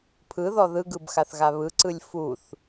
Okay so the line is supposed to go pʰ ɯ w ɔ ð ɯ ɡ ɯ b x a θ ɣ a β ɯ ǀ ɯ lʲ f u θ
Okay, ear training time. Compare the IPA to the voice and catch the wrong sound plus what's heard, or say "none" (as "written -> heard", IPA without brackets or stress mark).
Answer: w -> ð